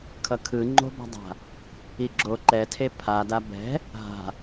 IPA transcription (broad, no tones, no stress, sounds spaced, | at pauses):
kʰ ʌ kʰ ɯ ŋ͡ǃ o̤ b a̤ dˤ a̤ | i ɡ͡ǁ o ǃ ɛ tʰ e pʰ a d a b ɛ̤ | ɦ a̤